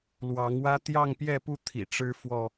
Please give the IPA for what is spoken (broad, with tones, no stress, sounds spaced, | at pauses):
l w ɑ˨˦ ŋ w ä˦ t̪ j ɑ˥˨ ŋ p j ɛ˥˨ p u˥˨ t̪ʰ ḭ˨˩ ʈ͡ʂ ɻ̩˦ f w ɔ˥˨